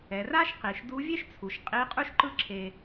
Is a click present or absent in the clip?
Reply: present